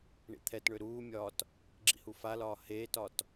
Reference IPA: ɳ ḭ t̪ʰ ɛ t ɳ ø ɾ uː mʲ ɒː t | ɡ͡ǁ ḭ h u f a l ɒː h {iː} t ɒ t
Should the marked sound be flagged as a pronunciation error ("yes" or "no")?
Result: yes